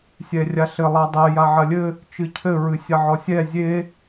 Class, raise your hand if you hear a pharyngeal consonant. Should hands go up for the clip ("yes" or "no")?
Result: yes